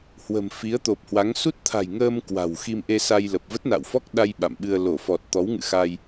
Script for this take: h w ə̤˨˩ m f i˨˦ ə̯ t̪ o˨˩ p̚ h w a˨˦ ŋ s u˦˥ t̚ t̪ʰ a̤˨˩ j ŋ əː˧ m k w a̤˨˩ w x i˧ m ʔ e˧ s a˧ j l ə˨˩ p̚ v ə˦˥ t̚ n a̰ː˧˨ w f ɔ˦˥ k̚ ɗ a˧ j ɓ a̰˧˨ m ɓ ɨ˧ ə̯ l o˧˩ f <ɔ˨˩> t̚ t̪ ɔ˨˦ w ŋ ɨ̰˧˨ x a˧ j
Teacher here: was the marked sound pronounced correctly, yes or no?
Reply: yes